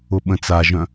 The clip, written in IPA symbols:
ʊɓə̃t͡saʒœ̃

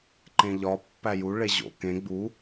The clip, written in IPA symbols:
ǃẽʎɒ pːæju ɭeʑo̰ kẽ ɡ͡bu

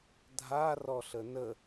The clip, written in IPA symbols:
dʱa rɔɬənə

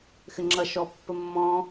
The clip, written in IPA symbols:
xɘŋ͡ǁʌ ʃɔpːəmːɔ̃

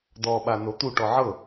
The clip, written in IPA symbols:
dɔɓa not̪uʈɔ ʕɤ

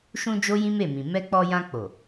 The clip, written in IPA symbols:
ʃũ˧ d͡ʒo˦jĩ˦me˦˨mĩ˨ mɛ˧k͡pɔ˧jã˧k͡po˨

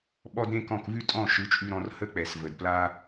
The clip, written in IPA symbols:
ɓɔ˦dɾẽ˦kɔ̃˦˨k vʉ˦tʼɔ̃˦˨ʃɯ˨˦t͡ʃʼʉ˧ ɾɔ̃˧rhə˦k͡pɛ˨s və˨dpla˦

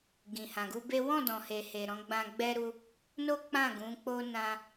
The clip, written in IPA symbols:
ɡĩ˨hã˨ɡu˧be˦ wɔ̃˦˨dɔ̃˨ he˨he˨ ɾɔ̃˨˦ɡ͡bã˧ɡ͡bɛ˦ɾu˦ | no˦k͡pã˦˨ɡũ˨˦k͡po˦ nã˧

